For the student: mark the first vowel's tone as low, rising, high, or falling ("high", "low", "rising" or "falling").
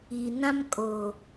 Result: low